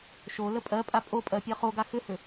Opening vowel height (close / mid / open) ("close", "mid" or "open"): mid